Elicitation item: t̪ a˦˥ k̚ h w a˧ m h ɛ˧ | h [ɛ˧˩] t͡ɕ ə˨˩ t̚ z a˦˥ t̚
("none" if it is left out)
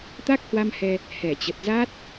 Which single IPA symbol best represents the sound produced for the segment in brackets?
ɛ˧˩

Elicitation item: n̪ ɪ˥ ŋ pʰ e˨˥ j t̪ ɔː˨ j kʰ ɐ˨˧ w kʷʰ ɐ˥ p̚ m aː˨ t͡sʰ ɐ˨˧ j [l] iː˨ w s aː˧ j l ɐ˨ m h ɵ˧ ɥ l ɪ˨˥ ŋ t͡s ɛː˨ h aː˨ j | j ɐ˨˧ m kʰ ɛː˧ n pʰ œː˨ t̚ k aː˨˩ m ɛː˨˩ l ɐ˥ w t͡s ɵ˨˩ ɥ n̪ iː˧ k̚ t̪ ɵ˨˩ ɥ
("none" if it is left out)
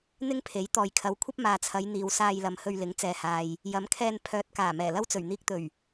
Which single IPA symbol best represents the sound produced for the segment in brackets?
n̪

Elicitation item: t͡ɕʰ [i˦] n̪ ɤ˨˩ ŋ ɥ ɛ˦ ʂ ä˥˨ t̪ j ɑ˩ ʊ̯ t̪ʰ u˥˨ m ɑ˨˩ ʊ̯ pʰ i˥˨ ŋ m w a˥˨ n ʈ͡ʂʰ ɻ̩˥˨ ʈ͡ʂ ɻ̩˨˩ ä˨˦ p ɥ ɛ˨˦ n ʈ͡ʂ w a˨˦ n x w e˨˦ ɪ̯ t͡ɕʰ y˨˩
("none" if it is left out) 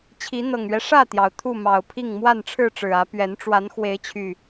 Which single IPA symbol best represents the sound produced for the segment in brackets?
i˨˦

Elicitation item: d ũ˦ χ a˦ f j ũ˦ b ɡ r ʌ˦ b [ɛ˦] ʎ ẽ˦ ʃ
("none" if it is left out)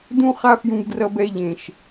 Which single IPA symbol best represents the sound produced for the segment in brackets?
ɛ˦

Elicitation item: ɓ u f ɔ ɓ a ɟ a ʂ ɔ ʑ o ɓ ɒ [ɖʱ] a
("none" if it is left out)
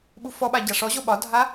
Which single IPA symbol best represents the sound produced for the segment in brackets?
dʱ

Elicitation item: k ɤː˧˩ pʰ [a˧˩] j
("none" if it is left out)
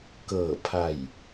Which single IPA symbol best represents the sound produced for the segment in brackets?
a˧˩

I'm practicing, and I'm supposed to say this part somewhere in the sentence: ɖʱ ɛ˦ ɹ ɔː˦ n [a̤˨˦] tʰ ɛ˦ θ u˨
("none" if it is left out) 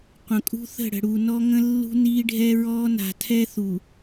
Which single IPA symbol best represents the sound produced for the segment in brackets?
a̤˨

